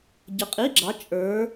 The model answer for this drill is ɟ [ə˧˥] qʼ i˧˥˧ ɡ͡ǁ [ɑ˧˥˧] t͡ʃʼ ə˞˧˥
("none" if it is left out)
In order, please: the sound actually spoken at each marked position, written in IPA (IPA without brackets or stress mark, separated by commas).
ə˧˥, ɑ˧˥